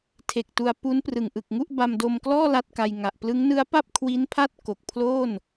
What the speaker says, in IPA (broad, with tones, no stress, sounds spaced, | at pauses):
tʰ e˨˩ k̚ t u˧ a̯ p u˦˥ n p r ɯ˨˩ ŋ ʔ ɯ˨˩ k̚ ŋ u˥˩ ʔ b a˧ m d o˧ m k l ɔː˥˩ l a˥˩ t̚ k a˧ j ŋ a˨˩ ʔ p l ɯ˦˥ ŋ n ɯ˦˥ a̯ p a˥˩ p̚ kʰ w i˦˥ n pʰ a˥˩ t̚ k o˨˩ k̚ pʰ l oː˥˩ n